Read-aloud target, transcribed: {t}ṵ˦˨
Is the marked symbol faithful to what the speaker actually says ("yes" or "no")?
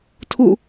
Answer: no